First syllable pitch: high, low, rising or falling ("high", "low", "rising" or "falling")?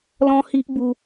high